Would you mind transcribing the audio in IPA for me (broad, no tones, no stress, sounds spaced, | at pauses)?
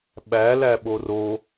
ɓ æ l æ ɓ o r o